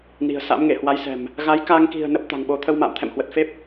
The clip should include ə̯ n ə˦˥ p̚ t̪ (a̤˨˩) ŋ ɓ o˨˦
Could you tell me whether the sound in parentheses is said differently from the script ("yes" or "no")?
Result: no